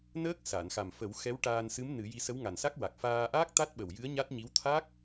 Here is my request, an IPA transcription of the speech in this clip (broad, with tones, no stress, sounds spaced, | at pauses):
n əː˦˥ k̚ s a˨˩˨ n x a˨˩ m f ə˨˩˦ w x ɛ˧˥ w ʈ aː˧ n s ɨ˧˥ m n ɨ˨˩˦ j i˧ s ə˧˥ w ŋ a˨˩ n s a˦˥ k̚ w a˨˩ k̚ f aː˧ ʔ aː˦˥ k̚ t̪ a˦˥ t̚ ɓ ə˨˩ w j ɨ˧˥ ə̯ ɲ a˦˥ t̚ ɲ i˧˥ w t̪ʰ aː˦˥ k̚